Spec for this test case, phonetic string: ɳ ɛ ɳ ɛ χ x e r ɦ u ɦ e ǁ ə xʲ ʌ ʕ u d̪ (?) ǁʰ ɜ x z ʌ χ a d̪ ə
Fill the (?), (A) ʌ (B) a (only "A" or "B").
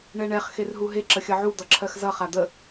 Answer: A